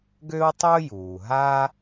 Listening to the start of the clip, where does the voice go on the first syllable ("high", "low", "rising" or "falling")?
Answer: high